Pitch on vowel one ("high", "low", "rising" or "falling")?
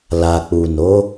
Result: low